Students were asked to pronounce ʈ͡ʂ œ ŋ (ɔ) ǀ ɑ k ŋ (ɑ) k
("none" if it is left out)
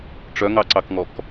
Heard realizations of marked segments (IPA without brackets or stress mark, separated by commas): ɑ, ɔ